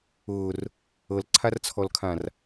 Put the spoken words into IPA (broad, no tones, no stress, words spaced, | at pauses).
ʊːr | ɤlǀʰart͡sʰɔlkʰãr